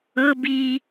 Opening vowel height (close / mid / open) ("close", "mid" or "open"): mid